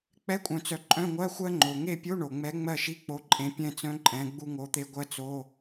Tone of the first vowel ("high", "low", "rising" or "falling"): rising